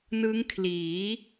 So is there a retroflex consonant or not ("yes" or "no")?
no